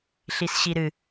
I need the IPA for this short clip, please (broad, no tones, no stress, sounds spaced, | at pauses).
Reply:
ɬ i s ɕ i ɾ ɨ